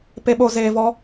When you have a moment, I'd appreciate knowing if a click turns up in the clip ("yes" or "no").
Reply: no